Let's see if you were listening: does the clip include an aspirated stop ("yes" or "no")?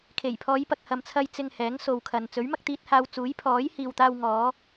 yes